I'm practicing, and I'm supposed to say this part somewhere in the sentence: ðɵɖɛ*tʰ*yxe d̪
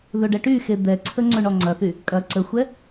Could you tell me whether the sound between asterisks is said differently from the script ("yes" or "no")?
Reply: yes